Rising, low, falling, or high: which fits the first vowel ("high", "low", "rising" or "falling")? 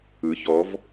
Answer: rising